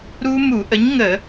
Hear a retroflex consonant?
no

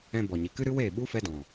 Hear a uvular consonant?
no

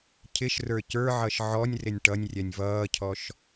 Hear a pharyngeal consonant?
yes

